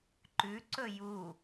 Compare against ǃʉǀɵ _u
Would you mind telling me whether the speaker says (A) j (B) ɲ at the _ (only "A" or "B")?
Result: A